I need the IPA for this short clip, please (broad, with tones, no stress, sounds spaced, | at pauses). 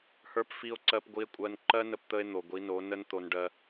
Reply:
h ə˞˦ p f i˦ o̯ ǀ ɜ˦ p ɡʷ i˧ e̯ kʷʼ ɜ˧ n ǃ ɜ˦ n ə˧ p t̪ ə˧ e̯ n̪ o˨ ɡʷ i˨˦ n o˨˦ n ə˦ n t̪ o˧ n ɖ ɜ˧